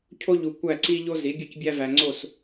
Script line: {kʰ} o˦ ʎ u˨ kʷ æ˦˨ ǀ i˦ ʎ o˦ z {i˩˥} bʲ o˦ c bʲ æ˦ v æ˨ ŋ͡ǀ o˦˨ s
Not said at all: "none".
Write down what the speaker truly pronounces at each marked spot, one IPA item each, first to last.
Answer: cʰ, i˩˥

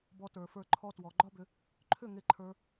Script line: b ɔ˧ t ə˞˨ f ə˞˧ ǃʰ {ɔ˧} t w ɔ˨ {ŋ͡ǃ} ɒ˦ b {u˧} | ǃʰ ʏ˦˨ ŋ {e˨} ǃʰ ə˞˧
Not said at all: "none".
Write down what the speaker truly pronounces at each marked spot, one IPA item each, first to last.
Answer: ɔ˧, ɡ͡ǃ, ʏ˧, e˧

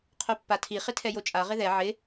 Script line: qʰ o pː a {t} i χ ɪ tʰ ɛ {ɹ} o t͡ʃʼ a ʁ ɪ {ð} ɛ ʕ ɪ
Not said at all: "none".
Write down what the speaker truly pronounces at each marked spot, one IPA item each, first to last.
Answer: tʰ, j, ð

